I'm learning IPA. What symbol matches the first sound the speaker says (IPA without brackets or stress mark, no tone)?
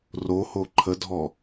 r